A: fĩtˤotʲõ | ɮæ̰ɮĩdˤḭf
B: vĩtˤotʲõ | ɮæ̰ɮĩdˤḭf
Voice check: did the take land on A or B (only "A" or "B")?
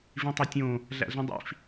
B